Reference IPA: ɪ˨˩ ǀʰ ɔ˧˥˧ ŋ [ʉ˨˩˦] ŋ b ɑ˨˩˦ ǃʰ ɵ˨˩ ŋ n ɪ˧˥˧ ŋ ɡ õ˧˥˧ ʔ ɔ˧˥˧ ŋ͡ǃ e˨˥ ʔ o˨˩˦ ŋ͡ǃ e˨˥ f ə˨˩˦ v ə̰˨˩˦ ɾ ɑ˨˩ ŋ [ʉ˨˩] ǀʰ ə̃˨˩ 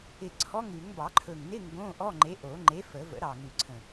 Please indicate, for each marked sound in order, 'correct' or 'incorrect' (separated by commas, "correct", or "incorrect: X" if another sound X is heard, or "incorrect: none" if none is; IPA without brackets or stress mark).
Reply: correct, correct